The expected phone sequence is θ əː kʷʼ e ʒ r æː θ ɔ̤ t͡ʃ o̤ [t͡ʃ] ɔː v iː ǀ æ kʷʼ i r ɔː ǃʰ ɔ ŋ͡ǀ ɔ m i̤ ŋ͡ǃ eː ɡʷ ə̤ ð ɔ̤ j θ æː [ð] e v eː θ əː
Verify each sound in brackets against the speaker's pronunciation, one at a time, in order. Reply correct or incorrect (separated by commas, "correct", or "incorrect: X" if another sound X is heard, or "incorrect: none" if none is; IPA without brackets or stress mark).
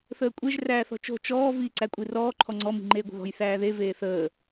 correct, correct